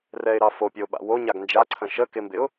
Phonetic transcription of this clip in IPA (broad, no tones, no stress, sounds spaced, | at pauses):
r ɛ ɪ̯ ɾ ɑ f o pʲ ə ʊ̯ ɓ a̰ w o ɲ a ɡ n d͡ʒ a ǀʰ ə̃ ʃ ə k ɪ m b ɪ ʊ̯